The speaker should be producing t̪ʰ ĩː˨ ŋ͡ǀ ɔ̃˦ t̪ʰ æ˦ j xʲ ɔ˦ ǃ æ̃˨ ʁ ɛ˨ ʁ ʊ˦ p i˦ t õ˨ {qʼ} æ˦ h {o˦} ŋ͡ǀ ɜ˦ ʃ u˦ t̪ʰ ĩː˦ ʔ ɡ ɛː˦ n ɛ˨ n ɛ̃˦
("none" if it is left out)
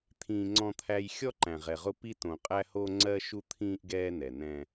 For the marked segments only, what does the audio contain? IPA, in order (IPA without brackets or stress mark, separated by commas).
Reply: qʼ, o˦